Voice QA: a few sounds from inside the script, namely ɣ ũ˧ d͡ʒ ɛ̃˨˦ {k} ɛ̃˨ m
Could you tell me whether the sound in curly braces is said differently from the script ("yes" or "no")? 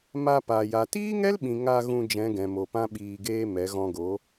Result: yes